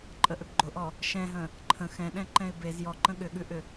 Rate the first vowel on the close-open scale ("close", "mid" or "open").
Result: mid